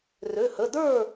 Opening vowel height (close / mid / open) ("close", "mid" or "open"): mid